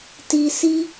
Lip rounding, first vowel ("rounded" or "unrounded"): unrounded